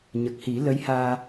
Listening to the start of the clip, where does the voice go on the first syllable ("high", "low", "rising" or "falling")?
low